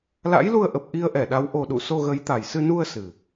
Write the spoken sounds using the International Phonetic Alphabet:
l a̰˧˥ j l u˧ ə̯ ʔ ə˨˩ p̚ ʔ i˧ ə̯ ʔ ɛ˧˩ ɗ a˨˦ w ʔ o˨˩ ɗ ṵ˧˨ s o˧ ɣ ə˨˦ j t̪ a˨˩ j s ɨ˧ n u˧ ə̯ s ɨ˨˩

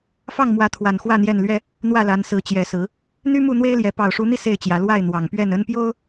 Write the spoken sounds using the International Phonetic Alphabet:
f ɑ˥˨ ŋ m w ä˨˦ t̪ʰ w a˨˩ n x w ä˥˨ n̪ j ɛ˥˨ n l ɥ ɛ˦ | n̪ w ä˥˨ l a˨˦ n s ɹ̩˨˦ t͡ɕ j ɛ˨˦ s ɹ̩˨˦ | n̪ y˦ m u˥˨ n̪ w e˦ ɪ̯ l j ɛ˨˦ p ɑ˨˩ ʊ̯ ʂ u˨˦ n̪ i˧ s e˥˨ ɪ̯ t͡ɕ j ä˨˦ l w a˥˨ ɪ̯ n̪ w ɑ˨˩ ŋ p ɥ ɛ˥˨ n ə˦ n p j o˦ ʊ̯

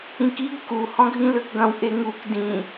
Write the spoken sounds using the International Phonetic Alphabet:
ĩ k i ɡ k u h ɔ̃ ɡʱ ĩ l ø k ɡ ɐ̃ w ʔ e ŋ u k d ĩ

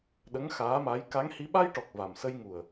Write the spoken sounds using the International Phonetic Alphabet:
ɗ ə˧˥ ŋ x aː˧˥ m a˧˥ j k a˧˥ ŋ h i˧˥ ɓ a˧ j ʈ ɔ˨˩ k̚ v a˨˩ m s ə˧ j ŋ u˨˩ ə̯

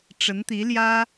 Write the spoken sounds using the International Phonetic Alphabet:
ʈ͡ʂ ə˧˥ n t̪ i˧˥ l j ä˥

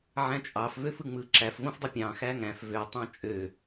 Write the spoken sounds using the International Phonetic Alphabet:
ʕ æ̃ t͡ʃʼ ɑ f v ø f ɯ ŋ͡m ɯ ǁ æ f v õ f dˤ o pʲ ɑ̃ x æ ŋ æ̃ f v ø tˤ ɑ̃ t͡ʃʼ ø

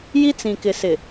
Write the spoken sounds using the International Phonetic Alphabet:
j i˦ t͡s ĩ˨ k ɪ˨ s ɪ˨

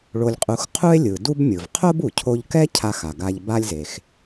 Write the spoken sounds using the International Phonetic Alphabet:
ɭ o˧ lʲ qʼ u˧ x qʰ u˥ e̯ lʲ ɯ˩ d u˥ b mʲ ɯ˩ v qʰ o˥ b u˩ cʰ o˧ ʎ k ɛ˥ cʰ a˧ x a˩ ɡ a˧ ʎ b a˥ lʲ z e˩ x

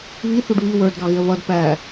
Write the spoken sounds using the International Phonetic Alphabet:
β i θ u ɖ β i w ə˞ d ɡ ɑ ɣ ɪ ə̯ β ʌ d p æ

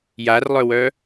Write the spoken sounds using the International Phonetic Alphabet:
j a r lˠ œ w œ

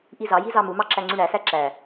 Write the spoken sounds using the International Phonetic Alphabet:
ʔ i z ɑ j i z ɑ m u m ɑ ǁ æ ŋ͡ǀ y ɳ æ s æ ǁ æ

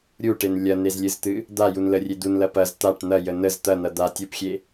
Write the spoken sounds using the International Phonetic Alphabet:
ɾʲ u ʈ e n lʲ ɐ n e z lʲ ɨ z t̪ ɨ | d̪ a j u n l ə rʲ e d̪ u n l ɐ p ɐ z t̪ a ʈ n̪ ɐ j ə n ə z t̪ ɐ n̪ ɐ d̪ a tʲ u p xʲ e

